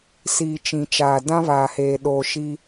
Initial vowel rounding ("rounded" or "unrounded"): unrounded